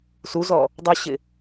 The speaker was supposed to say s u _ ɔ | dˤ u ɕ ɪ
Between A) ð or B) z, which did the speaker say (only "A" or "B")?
B